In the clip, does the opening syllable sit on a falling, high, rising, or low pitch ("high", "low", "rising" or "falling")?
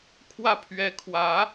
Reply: falling